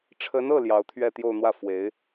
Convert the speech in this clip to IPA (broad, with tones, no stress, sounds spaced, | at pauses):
ʈ͡ʂʰ ə˧˥ n ɤ˥˩ l j ɑ˧˥ ʊ̯ t̪ʰ ɥ ɛ˥˧ t̪ j o˥˧ ʊ̯ n̪ w ä˥˩ f w e˧˥ ɪ̯